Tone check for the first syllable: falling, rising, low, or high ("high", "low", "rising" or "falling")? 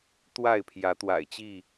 falling